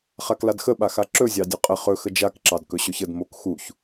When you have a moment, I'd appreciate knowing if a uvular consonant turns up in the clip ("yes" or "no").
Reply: yes